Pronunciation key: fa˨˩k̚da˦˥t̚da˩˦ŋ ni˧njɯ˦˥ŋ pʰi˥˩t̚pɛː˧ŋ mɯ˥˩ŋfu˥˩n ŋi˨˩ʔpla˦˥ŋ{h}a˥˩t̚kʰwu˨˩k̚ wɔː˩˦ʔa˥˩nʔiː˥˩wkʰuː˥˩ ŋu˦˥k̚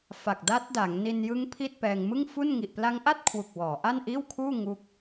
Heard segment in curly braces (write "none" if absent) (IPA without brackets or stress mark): ʔ